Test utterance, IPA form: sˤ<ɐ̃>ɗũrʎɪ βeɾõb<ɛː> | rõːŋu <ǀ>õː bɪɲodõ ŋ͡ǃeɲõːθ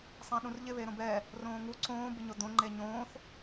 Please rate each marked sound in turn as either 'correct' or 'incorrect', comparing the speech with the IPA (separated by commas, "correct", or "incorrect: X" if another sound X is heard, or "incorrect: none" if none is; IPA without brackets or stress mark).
incorrect: ã, correct, correct